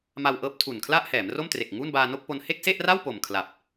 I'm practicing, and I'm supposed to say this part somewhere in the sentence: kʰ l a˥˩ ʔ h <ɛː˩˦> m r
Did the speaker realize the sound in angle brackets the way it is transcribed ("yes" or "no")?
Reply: yes